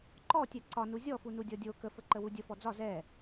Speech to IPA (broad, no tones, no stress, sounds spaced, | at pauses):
ǃ ɔ tʲ ɛ ǀ ɒ n u zʲ ɔ f u n u dʲ ɔ dʲ o k ə f ə ǃ ə w u dʲ ə f ɔ d͡z ɒ z ɛ